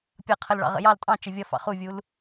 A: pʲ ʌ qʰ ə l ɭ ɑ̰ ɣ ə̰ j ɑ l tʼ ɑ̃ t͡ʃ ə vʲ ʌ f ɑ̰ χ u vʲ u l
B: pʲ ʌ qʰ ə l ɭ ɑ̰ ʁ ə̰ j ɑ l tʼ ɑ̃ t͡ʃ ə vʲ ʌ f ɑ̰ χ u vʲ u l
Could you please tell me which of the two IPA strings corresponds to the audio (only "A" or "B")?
B